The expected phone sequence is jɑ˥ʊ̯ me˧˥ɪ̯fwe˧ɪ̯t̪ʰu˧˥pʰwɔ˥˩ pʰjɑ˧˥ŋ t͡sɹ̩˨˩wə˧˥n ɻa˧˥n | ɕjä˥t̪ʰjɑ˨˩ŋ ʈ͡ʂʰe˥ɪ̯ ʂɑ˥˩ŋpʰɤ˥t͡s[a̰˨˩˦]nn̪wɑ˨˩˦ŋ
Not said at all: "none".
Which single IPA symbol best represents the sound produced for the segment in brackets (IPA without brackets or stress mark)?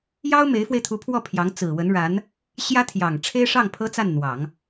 a˥˩